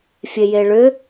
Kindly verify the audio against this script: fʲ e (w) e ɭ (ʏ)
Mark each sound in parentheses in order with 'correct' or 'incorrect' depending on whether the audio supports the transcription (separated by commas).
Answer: incorrect, correct